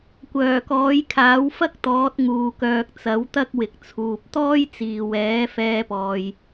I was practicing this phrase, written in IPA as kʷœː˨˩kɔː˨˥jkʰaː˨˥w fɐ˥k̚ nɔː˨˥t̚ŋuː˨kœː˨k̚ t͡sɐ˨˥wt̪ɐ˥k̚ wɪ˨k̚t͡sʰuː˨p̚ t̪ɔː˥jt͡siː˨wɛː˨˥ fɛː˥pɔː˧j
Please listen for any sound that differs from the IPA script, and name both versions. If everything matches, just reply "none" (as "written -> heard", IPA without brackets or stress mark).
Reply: n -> t̪